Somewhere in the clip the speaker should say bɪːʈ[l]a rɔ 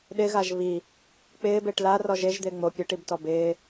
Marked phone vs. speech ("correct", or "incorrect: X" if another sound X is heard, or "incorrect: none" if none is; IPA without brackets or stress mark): correct